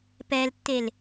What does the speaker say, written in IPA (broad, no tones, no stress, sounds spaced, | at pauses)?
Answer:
p ɛ l tː e l